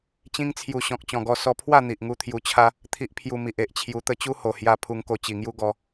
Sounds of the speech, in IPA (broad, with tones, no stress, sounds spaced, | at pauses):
t͡ɕ ĩ˧ ŋ t͡sʰ j u˨˩ ɕ ɔ̃˨ k̚ t͡ɕ ɔ̃˨˩ ɡ ɔ˧ s ɔ˧ pʰ w a˥˧ n̪ i˨ ʔ ŋ u˧ t̪ʰ j u˧ t͡ɕʰ a˦ | t̪ʰ i˦ ʔ pʰ j u˧ m i˨ ʔ e˨ ʔ t͡ɕʰ j u˧ t̪ ə˥˧ t͡ɕ u˦ h o˨˩ h j a˧ pʰ u˧ ŋ k o˧ t͡ɕ i˨˩ ŋ j u˦ ɡ ɔ˧